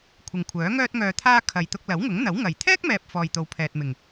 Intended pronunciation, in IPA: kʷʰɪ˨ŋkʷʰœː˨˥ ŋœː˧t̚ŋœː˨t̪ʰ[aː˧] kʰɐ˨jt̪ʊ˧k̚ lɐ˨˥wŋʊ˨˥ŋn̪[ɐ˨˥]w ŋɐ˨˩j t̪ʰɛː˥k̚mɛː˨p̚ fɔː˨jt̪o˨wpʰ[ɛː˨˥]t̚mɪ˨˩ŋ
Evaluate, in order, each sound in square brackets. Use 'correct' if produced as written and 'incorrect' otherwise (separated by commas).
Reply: correct, correct, incorrect